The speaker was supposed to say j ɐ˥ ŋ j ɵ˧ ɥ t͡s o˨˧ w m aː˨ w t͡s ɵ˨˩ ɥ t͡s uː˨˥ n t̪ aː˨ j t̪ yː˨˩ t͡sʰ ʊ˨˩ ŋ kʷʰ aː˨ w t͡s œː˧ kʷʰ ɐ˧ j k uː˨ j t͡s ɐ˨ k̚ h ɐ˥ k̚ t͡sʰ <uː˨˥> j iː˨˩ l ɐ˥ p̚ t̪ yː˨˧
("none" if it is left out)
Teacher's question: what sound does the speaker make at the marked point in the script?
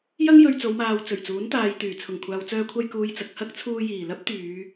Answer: uː˧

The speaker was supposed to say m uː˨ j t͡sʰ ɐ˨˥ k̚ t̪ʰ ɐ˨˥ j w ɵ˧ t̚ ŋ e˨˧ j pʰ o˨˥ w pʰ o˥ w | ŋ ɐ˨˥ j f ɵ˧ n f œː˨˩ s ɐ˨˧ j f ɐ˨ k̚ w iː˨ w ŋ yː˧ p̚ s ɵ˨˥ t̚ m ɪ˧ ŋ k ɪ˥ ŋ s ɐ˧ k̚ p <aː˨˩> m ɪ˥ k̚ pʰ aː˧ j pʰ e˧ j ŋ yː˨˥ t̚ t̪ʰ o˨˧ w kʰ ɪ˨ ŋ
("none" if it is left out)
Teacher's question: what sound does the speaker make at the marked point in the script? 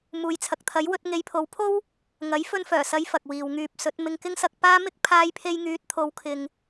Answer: aː˥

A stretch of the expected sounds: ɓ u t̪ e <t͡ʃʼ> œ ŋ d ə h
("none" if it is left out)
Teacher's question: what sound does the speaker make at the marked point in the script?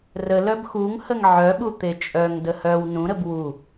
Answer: t͡ʃʼ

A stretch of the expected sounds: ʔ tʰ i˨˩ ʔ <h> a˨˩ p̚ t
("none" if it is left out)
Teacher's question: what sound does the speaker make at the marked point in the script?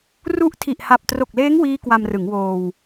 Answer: h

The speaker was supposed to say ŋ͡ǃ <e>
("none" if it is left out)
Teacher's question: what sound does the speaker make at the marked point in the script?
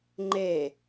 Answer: e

